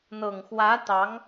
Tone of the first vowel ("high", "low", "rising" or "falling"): low